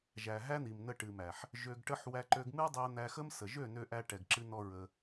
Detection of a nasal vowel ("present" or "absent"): absent